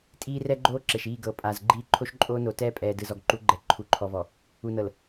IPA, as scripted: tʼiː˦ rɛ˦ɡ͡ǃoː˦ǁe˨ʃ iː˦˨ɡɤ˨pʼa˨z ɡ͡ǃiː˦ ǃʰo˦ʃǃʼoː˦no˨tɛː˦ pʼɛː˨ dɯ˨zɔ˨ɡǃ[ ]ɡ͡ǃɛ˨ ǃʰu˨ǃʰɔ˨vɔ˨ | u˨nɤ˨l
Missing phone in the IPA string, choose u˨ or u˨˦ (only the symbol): u˨˦